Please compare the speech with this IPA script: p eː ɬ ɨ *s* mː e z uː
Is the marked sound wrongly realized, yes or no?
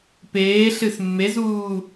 no